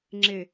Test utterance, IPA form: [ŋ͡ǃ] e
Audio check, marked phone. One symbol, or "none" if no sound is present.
ŋ͡ǁ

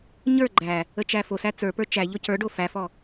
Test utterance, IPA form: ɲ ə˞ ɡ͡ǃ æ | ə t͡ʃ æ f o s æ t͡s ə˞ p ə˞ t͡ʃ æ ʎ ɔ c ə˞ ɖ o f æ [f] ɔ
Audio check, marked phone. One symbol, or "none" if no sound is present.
f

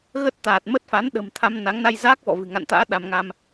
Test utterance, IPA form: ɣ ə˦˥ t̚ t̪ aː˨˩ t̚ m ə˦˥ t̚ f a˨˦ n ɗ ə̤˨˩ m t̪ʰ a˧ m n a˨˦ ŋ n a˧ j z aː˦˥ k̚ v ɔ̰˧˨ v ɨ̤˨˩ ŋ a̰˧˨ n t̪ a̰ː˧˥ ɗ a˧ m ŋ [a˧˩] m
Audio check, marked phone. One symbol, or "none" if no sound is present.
a˧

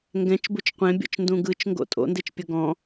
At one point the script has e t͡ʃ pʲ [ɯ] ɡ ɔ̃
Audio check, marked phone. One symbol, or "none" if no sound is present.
ɤ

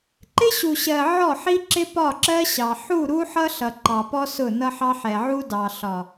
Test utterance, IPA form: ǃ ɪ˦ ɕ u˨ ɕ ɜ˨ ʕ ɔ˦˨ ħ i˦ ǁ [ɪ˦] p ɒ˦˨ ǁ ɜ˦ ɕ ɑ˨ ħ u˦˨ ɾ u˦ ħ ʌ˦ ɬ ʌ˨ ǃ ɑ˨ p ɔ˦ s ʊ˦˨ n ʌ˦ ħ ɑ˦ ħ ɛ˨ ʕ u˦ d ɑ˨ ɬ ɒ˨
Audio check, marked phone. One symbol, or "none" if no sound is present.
ɪ˦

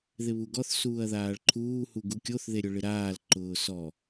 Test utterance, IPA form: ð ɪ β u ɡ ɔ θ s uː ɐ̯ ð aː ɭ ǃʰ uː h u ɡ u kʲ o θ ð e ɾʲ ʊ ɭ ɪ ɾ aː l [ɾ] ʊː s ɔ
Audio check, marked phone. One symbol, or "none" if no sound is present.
ǃ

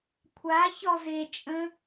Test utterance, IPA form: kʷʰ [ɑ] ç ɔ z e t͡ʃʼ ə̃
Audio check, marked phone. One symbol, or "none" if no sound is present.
a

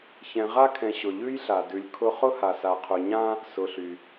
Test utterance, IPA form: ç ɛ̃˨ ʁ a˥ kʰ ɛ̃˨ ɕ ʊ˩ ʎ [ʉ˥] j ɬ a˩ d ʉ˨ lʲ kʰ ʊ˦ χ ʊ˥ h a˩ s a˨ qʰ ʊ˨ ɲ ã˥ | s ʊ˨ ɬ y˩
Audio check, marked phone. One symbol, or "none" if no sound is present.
ʉ˥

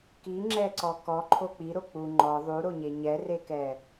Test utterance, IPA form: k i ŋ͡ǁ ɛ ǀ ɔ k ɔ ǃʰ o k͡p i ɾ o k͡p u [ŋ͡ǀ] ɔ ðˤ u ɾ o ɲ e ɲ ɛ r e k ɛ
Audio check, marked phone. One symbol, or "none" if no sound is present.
ŋ͡ǃ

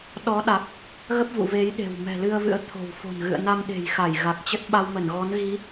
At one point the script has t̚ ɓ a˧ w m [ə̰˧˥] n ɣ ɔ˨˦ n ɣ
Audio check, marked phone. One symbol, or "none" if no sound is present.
ə˧˩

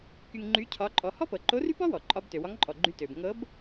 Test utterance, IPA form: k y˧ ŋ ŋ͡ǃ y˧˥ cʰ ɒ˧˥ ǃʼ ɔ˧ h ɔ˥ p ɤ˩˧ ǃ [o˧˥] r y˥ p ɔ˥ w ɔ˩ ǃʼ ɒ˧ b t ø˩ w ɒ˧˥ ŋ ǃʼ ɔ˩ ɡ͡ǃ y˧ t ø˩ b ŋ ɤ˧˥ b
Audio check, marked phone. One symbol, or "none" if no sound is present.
o˧˥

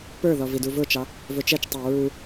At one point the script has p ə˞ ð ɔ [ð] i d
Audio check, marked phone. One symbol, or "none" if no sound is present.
v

